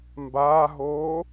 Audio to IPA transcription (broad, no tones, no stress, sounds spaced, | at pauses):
m b aː ɦ oː